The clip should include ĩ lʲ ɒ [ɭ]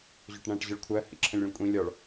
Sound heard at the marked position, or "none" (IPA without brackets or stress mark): ɭ